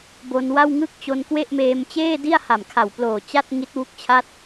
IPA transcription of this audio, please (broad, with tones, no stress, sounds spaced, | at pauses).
b o˧ n w a˥˩ w ŋ ɯ˥˩ k̚ t͡ɕ o˧ n k w e˥˩ ʔ m eː˧ m t͡ɕ eː˥˩ d i˥˩ a̯ h a˨˩ m kʰ a˨˩ w p l oː˨˩ t͡ɕ a˥˩ t̚ ŋ i˦˥ t̚ w u˦˥ k̚ t͡ɕʰ a˦˥ t̚